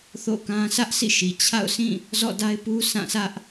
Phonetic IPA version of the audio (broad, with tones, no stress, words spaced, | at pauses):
θo̰˦˨kã˦ sä˦ʔ sʰḭ˦˨ʃi˨ t͡ɕʰa̰˦˨ʊ̯sĩ˦˨ | zɔ̰˦˨da˦ɪ̯pu˦ sã˦˨sʰä˦ʔ